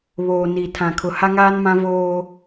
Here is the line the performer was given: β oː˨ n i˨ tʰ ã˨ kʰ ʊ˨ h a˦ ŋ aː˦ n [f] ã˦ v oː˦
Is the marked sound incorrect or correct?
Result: incorrect